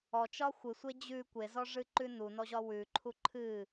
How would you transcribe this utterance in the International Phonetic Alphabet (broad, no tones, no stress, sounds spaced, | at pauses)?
ɔ t͡ʃ ɒ xʷ ɨ sʷ e d͡ʑ ʉ kʷ e z ɔ ʐ ɨ ǃ ʉ n u n ɔ ʑ ɒ w ʉ ǃʰ u ǃʰ ɨ